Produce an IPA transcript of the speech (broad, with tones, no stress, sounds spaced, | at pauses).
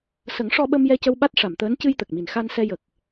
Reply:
s ə˨˩˦ ŋ ʂ ɔ˧ ɓ ə˧ m j ɛ˧ c ə˧ w ɓ a˦˥ t̚ ʂ a˨˩˨ m t̪ əː˧˥ n c ɨ˧ j t̪ ə˨˩ k̚ m i˨˩ n x a˧ n s ɛ˧ j ə˨˩ k̚